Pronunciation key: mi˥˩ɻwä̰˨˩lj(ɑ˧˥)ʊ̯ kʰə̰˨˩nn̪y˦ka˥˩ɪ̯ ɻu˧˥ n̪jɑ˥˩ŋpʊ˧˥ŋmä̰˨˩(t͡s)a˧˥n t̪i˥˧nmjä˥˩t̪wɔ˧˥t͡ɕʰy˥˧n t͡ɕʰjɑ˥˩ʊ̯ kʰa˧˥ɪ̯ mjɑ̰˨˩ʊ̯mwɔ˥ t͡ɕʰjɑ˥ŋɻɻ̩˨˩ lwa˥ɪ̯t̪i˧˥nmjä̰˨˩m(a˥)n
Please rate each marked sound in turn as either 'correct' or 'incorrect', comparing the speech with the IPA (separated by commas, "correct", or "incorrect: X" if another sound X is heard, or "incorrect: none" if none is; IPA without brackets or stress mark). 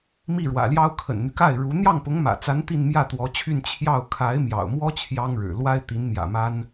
incorrect: ɑ˥, correct, correct